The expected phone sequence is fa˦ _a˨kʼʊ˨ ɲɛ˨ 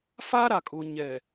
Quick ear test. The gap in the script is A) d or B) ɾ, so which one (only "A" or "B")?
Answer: B